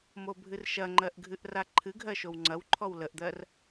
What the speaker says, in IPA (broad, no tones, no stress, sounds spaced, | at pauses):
m o bʱ ɨ r ʃ ɐ ŋ͡ǃ ɜ ʔ ɡʱ ɨ ʔ r a ǃʰ ɨ ɡʱ ɜ ʃ o w ŋ͡ǀ ɐ w ǃʰ ɔ w l ə ʔ d̪ ɜ r